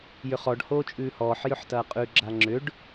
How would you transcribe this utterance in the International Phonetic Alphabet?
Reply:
j ʏ χ ɔ ɖ h oː t͡ʃʼ ʉː h ɔː ħ j ʏ ħ t ɐː qʼ ʉ ɡ͡ǁ a ŋ͡ǁ ʏ ɖ

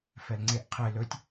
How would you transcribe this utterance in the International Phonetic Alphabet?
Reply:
f ɛ l ŋ͡ǀ e ʔ qʰ e l ɵ tʲ

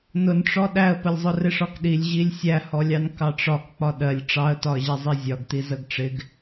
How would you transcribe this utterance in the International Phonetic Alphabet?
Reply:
n ʊ n ʈ͡ʂ ɔ ɗ æ ə̯ p ə lʲ zˤ ʊ r ɪ ʂ ɒ k ɗ i lʲ ʑ i lʲ sʲ æ h ɔ lʲ ɑ n k ɑ ʈ͡ʂ ɒ k k͡p ɒ ɗ ɜ lʲ ʈ͡ʂ ɑ ə̯ t ɒ ə̯ ʑ ɛ zˤ i zʲ ɒ ɡ t i z ə ɡ ʈ͡ʂ ɪ ɡ

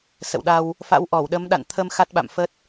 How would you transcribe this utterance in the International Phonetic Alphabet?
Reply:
s ə̰˧˨ w ɗ a˧ w | f a̰˧˥ w ʔ ɔ˧˩ w ɗ ə˨˦ m ɗ a̰˧˨ n t̪ʰ ə˧ m x a˦˥ t̚ ɓ a̰˧˨ m f ə˦˥ t̚

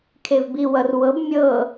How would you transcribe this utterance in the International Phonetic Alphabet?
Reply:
kʰ e v b i w ʌ r w ɤ b mʲ ɤ

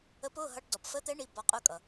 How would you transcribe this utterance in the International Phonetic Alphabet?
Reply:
ə˧˥ p ʊ˧˥˧ ɦ ʌ˧˥˧ ʈ d ɔ˨ p f ə˧˥ t̪ ɛ˧˥ ɳ i˧˥˧ b ɒ˧˥ qʼ ʊ˧˥˧ kʼ ʌ˨

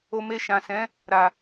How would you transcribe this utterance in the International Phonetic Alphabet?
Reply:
o˧ m e˧ ʃ ã˨ s ɛ̃˨˦ | ɾ a˨

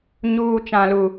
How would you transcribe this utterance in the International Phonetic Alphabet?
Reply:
ɲ uː˦ t͡ʃ ã˦ l u˦

